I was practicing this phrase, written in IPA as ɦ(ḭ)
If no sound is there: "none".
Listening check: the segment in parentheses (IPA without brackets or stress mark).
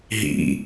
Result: ḭ